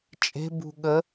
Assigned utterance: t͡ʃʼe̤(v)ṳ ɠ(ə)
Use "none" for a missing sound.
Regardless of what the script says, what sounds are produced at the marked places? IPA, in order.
b, ə

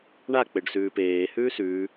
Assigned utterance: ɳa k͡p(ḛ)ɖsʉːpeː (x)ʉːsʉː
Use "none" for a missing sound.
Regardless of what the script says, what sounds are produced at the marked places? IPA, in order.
e, h

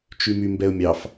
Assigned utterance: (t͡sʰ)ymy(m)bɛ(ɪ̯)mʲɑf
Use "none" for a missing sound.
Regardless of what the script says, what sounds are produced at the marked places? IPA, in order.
t͡ʃ, m, ʊ̯

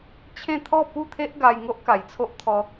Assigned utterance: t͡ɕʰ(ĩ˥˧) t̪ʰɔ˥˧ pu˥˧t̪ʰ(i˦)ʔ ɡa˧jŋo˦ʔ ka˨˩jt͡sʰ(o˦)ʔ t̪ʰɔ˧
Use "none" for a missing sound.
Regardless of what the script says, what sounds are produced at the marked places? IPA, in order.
ẽ˥˧, e˦, o˦

